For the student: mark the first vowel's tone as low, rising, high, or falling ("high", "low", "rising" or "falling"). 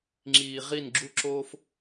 low